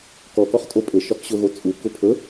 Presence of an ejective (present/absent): present